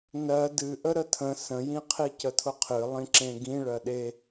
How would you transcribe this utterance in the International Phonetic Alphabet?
nɜ dɨ ʔəɾətʰə̃ sə̃jĩqʰi cətʰʊqʰɨ lˠĩǁẽɡĩ ɭɜɗe

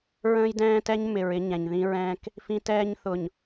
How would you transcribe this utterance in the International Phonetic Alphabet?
ɹə̃ː˦jdɛ̃ː˦tɛ˦ɲ mɪ˨ɹ ɪ˦ɲɛ̃˨ɲðĩ˦ɹɛ̃ː˦k | fĩ˦tɛː˦ɲ θʊ˨ɲ

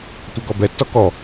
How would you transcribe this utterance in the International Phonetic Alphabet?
tʷɛɡɔbɛtːɔ kɔ

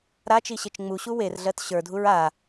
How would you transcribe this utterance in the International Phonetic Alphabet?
ɾat͡ʃiɕet͡ʃ ŋ͡muɕu werɮɜt ɕə˞dʱuɹ a

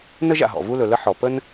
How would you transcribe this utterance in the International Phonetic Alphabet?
nə˥ʒ a̰˩ɦɔ̰˩ vu˥lɵ˩lə˥ ħɔ˩ pə˥n

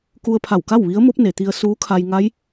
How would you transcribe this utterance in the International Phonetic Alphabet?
ku˧ə̯pʰa˧˩wka˥˨w ʋi˧˥ə̯ mo˧˥p̚ne˩t̪i˧ə̯ suː˧˥kʰa˧jŋa˧˥j

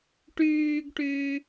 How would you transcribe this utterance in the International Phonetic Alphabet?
ʈyːɡʈyː

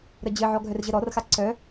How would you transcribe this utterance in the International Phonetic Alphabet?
ɾəd͡ʑɘʕɔ ɡʱœrʑəɾɔrxa ǀœ

